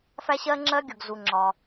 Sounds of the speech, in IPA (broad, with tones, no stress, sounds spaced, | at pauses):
f æ˥ ɕ ɜ˥ ŋ͡ǁ ɜ˥ ɡʲ ʊ˩ ɡ z u˩ ŋ͡ǁ ɒ˩